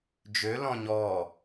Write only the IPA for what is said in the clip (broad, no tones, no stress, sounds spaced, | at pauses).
d͡ʒ ø l ɔ̃ ɲ ɔ